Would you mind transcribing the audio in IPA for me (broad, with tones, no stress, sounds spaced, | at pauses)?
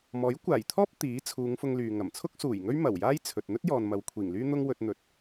m ɔː˨˥ j kʷ aː˨˩ j t̪ʰ ɔː˥ p̚ t̪ iː˨˥ t͡sʰ uː˨˧ ŋ f ʊ˧ ŋ l yː˨ ŋ ɐ˨˩ m t͡sʰ ʊ˥ k̚ s uː˨˩ j ŋ ɵ˥ ɥ m ɐ˨˩ w j aː˥ j t͡sʰ ɵ˨ t̚ n̪ ɵ˥ t̚ j ɔː˨ n m ɐ˨ w kʷʰ iː˨˩ ŋ l yː˥ n̪ ʊ˥ ŋ w ɵ˧ t̚ n̪ ɵ˧ t̚